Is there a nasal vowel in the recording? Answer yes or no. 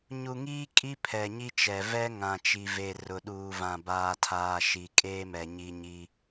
yes